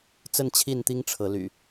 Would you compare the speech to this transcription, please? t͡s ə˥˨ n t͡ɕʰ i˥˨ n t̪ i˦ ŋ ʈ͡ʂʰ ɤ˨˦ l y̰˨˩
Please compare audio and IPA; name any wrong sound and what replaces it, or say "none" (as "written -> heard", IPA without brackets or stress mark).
none